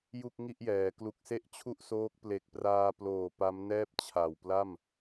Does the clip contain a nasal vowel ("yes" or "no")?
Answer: no